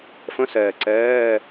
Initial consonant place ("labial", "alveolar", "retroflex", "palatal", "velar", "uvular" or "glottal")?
labial